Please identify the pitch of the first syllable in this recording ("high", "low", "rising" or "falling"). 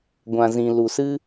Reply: low